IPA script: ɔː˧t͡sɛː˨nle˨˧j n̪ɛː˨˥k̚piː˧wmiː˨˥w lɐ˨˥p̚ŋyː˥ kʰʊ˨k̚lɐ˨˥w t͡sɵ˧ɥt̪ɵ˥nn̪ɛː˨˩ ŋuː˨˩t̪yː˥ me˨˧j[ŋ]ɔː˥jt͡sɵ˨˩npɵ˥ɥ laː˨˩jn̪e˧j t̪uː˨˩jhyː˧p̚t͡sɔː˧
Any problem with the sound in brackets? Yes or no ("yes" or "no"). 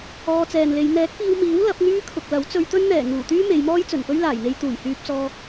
yes